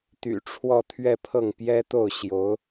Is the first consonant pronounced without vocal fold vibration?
yes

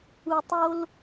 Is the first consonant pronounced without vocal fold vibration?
yes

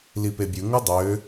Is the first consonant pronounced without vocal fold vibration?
no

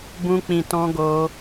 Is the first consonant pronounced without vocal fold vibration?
no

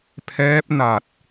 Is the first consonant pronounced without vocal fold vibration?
yes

